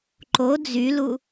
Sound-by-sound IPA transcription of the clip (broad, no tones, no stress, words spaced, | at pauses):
ǃo d͡zylu